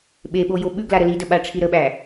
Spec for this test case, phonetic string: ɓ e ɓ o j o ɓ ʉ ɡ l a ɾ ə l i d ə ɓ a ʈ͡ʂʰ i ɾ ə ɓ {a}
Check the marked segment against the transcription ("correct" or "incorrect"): incorrect